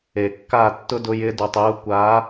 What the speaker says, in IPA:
e˨ kː a˦˨ tː ʊ˦ d ʊ˧ j ɪ˧ d u˨ tˤ j u˧ kʷ a˨˦

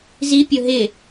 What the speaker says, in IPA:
z i pʲ o ɦ ɪ

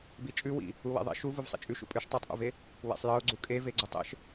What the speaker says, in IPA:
b i t͡ʃʼ ʉ w ḭ | u w ḛ ðˤ ḛ ʃ u v u v sˤ ḭ t͡ʃʼ ʉ ʃ ṵ pʼ ʉ ʃ tˤ ɤ tˤ ʔ ṵ v e | w ḛ sˤ j ɤ ʊ̯ ɡ͡ǀ u kʼ e v e ɡ͡ǀ u tˤ ḛ ʃ

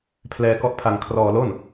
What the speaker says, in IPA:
pʰ l ɛː˧ k ɔ˦˥ ʔ pʰ a˧ ŋ kʰ r ɔː˧ l o˥˩ n

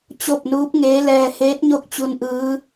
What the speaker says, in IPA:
t͡ɕ o˥˨ p̚ n uː˧˥ p̚ ŋ eː˧˥ l ɛː˧ h eː˧˥ t̚ ɲ o˧˥ k̚ t͡ɕ u˧ n ʔ ɯː˧˥

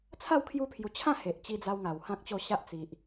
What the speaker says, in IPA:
t͡sʰ a˥˧ w kʰ j u˧ pʰ j u˨˩ t͡ɕʰ ã˥˧ h e˨ ʔ t͡ɕ i˧ d͡z a˧ w ŋ a˨˩ w h ã˦ k̚ t͡ɕ o˥˧ ɕ a˦ ʔ t͡s i˨ ʔ

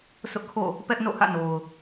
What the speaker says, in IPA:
sʰ ʊ˦ ʔ kʰ o̰˦˨ | p ɛ˦ ʔ n o̰˦˨ h ä̰˦˨ n o˨ ʊ̯

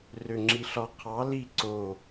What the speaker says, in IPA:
r ø ŋ͡ǁ i ɬ ɒ qʰ ɑ l i ǀ o

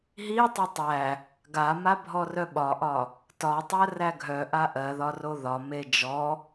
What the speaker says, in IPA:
ɦ i tˤ o tˤ æ | ɡ a m a bʱ ɔ r œ ɓ ɒ ʔ ɒ | t ɒ tˤ ɜ r æ ɡʱ œ ʔ a ʔ ɜ ð ɒ r o ð ɒ m e d͡ʒ ɔ

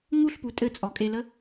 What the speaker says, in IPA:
ŋ u ɬ p u tʼ ɘ t͡sʼ ɔ kʼ e l ə

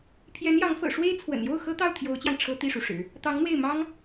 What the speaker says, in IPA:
pʰ j ɛ˧˥ n j ɑ˧˥ ŋ f ɤ̰˨˩ ʂ w e˥ ɪ̯ t͡sʰ w ə̰˨˩ n j o˥˩ ʊ̯ x ɤ˥ t̪ ɑ˥˩ ʊ̯ t̪ʰ j o˧˥ ʊ̯ t͡ɕ j ɑ˧ ŋ ʈ͡ʂʰ ɤ˥ t̪ i˥˩ ʂ u˩ ʂ ɻ̩˨˩˦ | t̪ ɑ˧˥ ŋ n̪ w e˥˩ ɪ̯ m ɑ˥ ŋ

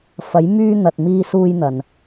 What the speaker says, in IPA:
f ɐ˨˧ j m yː˧ n̪ ɐ˨ t̚ m iː˧ s uː˧ j n̪ ɐ˨ n

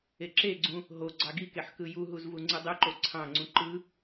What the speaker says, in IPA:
e ǁ e ɡ͡ǀ ũ | ɦ o ɡ͡ǀ ɑ ɡ i k e ħ k ɯ j u ɦ u z v u ŋ͡ǀ ɯ dˤ ɯ ǃ o ǀʰ ɑ̃ ŋ͡ǀ ũ ǃ ɯ

